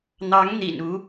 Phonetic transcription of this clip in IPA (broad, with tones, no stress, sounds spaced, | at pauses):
n̪ ɑ˧˥ ŋ n̪ ḭ˨˩ n u˧˥